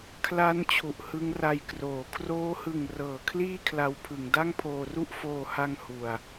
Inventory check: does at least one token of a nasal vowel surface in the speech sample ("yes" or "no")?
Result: no